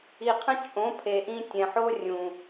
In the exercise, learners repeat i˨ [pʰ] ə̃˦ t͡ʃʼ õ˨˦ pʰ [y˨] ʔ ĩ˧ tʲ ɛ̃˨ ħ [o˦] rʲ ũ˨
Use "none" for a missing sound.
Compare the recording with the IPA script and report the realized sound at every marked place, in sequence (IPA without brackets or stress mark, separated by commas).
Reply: qʰ, e˨, o˦